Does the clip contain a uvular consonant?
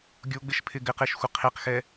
yes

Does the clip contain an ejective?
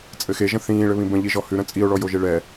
yes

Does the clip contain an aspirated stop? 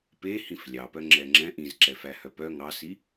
no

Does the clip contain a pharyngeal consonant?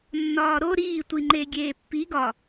no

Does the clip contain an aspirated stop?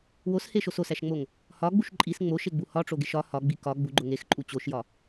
no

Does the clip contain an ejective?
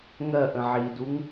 no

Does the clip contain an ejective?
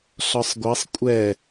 yes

